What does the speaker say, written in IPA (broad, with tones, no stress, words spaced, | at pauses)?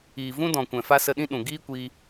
iː˨vũ˦dɔ̃˨kʷɛ̃˨ fa˦sə˧ɗĩ˦ɗũ˨ ɡiː˦kʷiː˧